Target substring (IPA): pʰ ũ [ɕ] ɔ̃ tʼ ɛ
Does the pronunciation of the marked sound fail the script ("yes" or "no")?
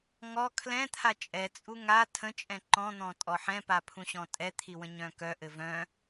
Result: no